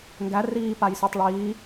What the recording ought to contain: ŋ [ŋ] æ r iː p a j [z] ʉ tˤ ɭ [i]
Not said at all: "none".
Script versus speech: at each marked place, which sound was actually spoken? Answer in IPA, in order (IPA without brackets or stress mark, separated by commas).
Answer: ɡ, s, iː